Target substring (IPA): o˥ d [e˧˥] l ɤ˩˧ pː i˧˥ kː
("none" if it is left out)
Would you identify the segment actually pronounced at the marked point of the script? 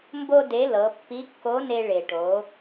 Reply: e˧˥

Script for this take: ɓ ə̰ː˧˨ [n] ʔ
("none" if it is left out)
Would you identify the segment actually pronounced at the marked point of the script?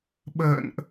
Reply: n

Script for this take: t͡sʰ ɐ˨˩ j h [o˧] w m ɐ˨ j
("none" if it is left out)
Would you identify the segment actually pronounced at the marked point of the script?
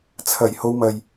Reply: o˧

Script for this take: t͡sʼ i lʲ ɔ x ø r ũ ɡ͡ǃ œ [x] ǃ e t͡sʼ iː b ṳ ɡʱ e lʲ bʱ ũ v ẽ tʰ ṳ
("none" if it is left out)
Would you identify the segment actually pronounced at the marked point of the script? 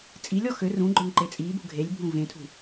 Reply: ŋ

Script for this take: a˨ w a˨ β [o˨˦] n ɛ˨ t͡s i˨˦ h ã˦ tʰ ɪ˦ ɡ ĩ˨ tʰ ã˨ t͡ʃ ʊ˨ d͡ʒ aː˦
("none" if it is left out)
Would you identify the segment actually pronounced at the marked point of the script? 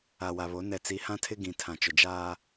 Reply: o˨˦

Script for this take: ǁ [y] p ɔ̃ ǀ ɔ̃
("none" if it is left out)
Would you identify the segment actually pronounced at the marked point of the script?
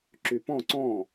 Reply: y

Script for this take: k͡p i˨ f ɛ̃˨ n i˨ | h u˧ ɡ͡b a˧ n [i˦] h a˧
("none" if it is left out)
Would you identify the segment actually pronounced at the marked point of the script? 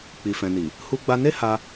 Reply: e˦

